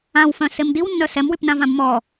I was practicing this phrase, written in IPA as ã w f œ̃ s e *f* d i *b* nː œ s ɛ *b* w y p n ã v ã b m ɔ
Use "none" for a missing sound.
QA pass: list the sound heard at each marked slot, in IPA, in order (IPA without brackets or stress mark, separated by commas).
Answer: m, w, m